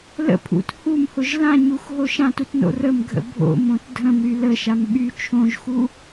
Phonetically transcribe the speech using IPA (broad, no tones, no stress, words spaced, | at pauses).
lə̰pʰṵt humhʊʒ lãɲuxɦo ʃãtutno̰ rəmɡʱə̰ bʱo̰mõt dʱə̃mɾy ləʃam ɓy t͡ʃʰõʒxu